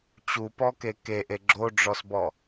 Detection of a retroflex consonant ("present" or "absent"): present